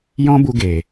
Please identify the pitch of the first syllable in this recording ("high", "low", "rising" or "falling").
high